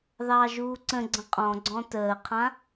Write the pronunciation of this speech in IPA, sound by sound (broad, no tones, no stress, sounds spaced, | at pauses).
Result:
ð ɑː ʒ uː ǀ ə̃ ɡ͡ǀ ə̃ qʼ ɔ̃ ɡ͡ǀ ɔ̃ t əː qʰ ã